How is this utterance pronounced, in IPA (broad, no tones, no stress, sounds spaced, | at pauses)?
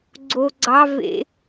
ɡ͡ǀ o ɡ͡ǀ ɑ v ḛ